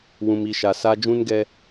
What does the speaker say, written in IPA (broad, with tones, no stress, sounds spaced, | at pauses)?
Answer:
w ũ˨ m i˨ ʃ a˨ s a˦ d͡ʒ ũ˦ n ɡ ɛ˦